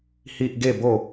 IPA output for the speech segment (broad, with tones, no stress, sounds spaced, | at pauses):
h i˦ ʔ ɡ e˥˧ b o˥˧